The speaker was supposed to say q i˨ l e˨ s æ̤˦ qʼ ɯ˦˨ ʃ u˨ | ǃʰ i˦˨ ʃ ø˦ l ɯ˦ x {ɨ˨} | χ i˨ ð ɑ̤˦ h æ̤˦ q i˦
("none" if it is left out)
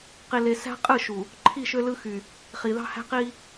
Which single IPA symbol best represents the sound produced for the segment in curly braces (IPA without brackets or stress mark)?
y˨